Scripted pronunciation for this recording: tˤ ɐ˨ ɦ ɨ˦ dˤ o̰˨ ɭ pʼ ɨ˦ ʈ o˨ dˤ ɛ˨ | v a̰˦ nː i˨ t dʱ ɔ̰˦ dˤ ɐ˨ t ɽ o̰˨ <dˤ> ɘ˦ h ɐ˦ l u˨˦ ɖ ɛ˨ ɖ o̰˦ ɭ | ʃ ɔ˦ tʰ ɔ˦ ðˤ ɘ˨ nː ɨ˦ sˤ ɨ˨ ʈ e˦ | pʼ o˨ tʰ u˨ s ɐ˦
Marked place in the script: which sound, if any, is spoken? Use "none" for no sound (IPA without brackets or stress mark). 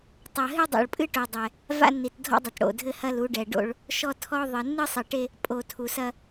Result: dʱ